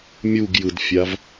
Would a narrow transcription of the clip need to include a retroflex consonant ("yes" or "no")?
no